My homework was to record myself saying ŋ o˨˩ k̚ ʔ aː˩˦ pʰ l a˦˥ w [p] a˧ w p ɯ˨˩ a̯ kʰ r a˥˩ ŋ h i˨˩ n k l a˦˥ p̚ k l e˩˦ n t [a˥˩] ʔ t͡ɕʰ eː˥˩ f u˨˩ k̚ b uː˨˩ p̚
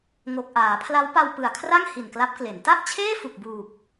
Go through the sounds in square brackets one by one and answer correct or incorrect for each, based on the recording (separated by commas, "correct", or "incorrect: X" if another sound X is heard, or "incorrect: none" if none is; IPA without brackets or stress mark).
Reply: correct, correct